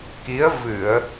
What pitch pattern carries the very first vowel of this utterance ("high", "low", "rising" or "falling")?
rising